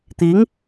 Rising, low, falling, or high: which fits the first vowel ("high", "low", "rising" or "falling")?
rising